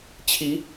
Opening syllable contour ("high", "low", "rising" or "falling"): rising